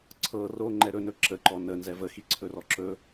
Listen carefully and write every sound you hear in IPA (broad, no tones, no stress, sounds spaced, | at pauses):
ǀʰ ɤ r o ŋ͡ǃ ɛ ɾ ɵ n ɵ ǁ ə ǃ ɔ n ə n z ɛ v ə x i ǀʰ ɵ r ɔ ǁ ɵ